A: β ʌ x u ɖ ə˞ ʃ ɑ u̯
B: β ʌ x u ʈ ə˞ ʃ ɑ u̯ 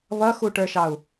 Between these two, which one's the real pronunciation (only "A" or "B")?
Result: B